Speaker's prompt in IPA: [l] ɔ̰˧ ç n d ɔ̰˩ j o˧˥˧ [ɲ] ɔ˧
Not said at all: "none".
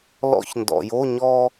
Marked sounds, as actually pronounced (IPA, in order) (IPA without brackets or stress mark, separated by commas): l, ɲ